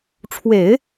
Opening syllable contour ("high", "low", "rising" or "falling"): low